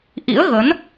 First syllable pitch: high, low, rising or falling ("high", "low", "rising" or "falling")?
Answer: rising